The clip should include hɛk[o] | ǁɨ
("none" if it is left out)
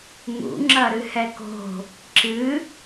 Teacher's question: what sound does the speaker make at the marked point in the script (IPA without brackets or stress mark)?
o̤